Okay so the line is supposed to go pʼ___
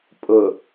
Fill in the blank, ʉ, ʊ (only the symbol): ʊ